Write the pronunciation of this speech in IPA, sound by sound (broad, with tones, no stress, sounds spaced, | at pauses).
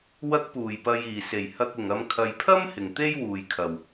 w ɐ˧ k̚ p uː˨˩ j p ɐ˨ j iː˨˩ s e˨˩ j h ɐ˧ k̚ ʊ˨ ŋ ɐ˧ m kʰ ɐ˨ j pʰ ɐ˥ m h ɪ˨ ŋ t̪ e˥ j w uː˨ j kʰ ɐ˨ w